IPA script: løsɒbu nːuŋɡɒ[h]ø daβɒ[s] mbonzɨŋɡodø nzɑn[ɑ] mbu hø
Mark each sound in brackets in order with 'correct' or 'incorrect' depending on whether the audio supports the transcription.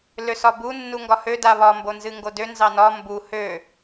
correct, incorrect: none, incorrect: ɒ

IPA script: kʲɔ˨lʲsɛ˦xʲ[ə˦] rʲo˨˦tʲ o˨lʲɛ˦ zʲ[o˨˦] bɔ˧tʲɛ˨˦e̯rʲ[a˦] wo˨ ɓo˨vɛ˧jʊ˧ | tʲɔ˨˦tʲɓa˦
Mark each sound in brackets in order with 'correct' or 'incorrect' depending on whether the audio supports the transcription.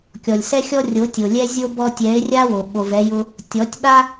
incorrect: ɔ˦, incorrect: o˦, correct

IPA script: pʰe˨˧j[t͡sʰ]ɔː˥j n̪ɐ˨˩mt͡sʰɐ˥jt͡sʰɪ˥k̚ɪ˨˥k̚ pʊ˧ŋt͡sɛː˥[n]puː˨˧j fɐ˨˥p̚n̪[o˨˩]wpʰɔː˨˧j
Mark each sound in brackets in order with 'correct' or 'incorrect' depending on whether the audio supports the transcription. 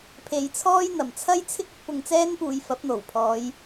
correct, correct, correct

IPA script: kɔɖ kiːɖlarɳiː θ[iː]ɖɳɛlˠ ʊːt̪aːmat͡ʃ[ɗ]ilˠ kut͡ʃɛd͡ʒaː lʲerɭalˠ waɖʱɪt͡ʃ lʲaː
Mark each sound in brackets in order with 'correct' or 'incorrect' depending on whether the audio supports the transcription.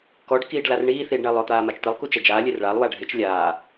correct, incorrect: t̪

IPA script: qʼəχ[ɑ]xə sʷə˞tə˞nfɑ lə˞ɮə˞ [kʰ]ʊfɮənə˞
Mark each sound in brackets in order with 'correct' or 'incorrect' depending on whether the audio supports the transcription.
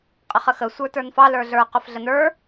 incorrect: ə, incorrect: q

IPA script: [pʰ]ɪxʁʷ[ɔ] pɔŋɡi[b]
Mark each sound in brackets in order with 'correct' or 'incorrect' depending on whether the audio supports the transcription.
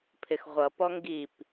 correct, incorrect: ʌ, incorrect: p

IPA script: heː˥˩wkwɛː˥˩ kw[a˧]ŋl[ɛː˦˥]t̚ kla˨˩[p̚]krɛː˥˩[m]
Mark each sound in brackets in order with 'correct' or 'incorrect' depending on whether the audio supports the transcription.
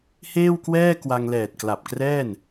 correct, incorrect: ɛː˨˩, correct, incorrect: n

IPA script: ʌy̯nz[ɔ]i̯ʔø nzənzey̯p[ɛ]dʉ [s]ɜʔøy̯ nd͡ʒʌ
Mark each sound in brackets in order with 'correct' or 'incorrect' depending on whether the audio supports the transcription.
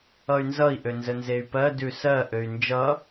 incorrect: ʌ, incorrect: ɜ, correct

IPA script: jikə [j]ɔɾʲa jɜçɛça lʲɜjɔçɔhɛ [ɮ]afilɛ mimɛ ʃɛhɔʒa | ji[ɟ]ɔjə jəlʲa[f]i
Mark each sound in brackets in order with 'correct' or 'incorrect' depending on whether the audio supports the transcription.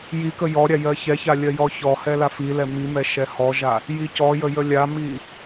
correct, incorrect: l, incorrect: c, incorrect: m

